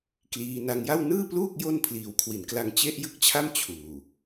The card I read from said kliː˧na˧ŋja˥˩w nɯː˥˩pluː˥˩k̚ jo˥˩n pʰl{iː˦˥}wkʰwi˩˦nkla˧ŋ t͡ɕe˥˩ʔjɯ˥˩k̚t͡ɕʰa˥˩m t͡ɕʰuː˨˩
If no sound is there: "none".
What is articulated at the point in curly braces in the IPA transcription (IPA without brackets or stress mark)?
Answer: iː˨˩